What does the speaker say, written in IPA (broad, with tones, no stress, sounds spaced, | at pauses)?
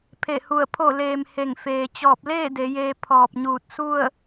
pʰ e˧˩ h u˧˩ ə̯ pʰ o˧˩ l eː˩ m h e˧˩ ŋ f eː˩ t͡ɕ ɔː˧˩ p̚ l eː˥˨ d e˩˧ j eː˧ pʰ ɔː˧˩ p̚ ɲ uː˧˩ t̚ s u˥˨ ə̯